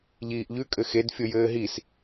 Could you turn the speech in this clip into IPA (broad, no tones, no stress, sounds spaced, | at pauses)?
ʎ iː ʔ ʎ ʉ kʼ ɘ x e d fʲ o j ɘː ɦ i s